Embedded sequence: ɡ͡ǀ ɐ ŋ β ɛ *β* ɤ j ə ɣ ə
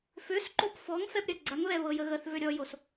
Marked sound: correct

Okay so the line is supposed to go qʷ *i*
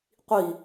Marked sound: correct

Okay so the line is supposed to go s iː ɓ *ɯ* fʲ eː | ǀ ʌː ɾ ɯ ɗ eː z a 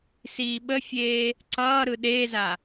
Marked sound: incorrect: ə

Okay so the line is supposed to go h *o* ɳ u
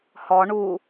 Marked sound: incorrect: ɔ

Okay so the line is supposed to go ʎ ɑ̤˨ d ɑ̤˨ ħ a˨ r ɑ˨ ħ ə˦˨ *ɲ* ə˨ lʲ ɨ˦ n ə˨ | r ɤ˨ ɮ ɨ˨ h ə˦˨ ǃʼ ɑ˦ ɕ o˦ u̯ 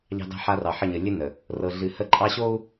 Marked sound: correct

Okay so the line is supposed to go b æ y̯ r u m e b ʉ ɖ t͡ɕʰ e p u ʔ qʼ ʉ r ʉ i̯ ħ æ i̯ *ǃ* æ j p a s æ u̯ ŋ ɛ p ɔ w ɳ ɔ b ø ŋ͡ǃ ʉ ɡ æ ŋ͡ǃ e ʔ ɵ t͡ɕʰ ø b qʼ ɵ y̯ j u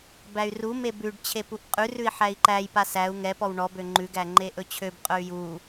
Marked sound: correct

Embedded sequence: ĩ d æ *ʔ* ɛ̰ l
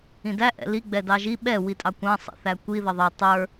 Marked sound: correct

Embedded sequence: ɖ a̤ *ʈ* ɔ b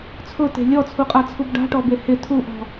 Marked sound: correct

